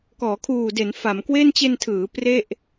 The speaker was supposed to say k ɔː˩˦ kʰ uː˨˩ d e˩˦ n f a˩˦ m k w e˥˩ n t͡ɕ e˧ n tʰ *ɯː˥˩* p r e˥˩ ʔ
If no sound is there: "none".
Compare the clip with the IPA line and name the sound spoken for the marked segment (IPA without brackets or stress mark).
ɯː˩˦